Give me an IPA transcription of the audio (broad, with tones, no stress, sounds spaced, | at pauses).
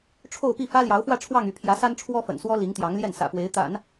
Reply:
ʈ͡ʂʰ o˥˧ ʊ̯ p i˥˩ f ä˥ l j ɑ˧˥ ʊ̯ f w ä˥˧ ʈ͡ʂʰ w ɑ˥˧ ŋ y˥˩ pʰ j ä˧˥ s a˥ n ʈ͡ʂʰ w ɔ˥ f ə̰˨˩ n s w ɔ˥ l i˧˥ ŋ t̪ j ɑ˧˥ ŋ l j ɛ˥˩ n s ä̰˨˩ p w e˧˥ ɪ̯ t̪ a̰˨˩˦ n